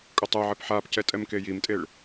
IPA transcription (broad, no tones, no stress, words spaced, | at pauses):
kʼotˤoʕep ħapcɛ tʼɛmkejimtʼeɭ